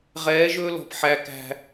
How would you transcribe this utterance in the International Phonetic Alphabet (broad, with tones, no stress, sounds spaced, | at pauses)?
ʁ ɛː˨˦ ʒ ɵː˦ l ɔ̤˨ p ħ æ˨ k æ̤˨